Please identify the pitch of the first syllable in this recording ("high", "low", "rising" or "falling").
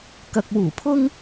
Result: low